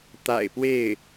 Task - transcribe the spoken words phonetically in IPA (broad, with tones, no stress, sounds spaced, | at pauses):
t̪ a̰˨˩ ɪ̯ p w e˥˩ ɪ̯